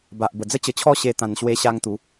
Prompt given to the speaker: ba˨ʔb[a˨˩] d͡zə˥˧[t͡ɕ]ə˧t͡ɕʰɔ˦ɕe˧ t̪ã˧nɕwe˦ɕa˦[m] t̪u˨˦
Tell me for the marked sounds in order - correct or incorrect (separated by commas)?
incorrect, correct, incorrect